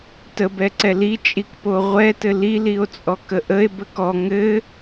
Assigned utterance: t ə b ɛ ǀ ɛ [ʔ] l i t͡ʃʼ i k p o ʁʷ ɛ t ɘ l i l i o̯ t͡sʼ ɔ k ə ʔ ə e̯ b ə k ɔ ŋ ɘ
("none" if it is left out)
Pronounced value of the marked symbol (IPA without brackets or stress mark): none